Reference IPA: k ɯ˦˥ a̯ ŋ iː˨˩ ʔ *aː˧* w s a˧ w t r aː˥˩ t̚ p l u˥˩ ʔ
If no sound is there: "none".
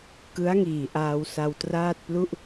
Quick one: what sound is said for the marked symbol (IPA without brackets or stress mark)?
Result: aː˧